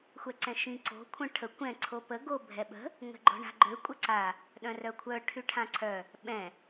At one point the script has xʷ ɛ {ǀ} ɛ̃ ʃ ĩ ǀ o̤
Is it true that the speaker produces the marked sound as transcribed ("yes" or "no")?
yes